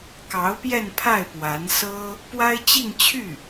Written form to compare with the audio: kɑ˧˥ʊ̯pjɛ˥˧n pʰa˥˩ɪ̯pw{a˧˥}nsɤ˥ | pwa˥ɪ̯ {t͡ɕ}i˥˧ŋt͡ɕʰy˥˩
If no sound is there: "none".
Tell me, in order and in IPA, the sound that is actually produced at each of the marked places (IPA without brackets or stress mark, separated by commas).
a˧˥, t͡ɕ